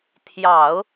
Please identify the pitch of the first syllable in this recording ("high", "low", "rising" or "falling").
low